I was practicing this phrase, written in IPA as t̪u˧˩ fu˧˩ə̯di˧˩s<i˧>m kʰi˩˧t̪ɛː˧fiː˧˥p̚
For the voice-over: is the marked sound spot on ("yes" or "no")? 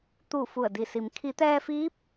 no